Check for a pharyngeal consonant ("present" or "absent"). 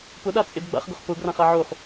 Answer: present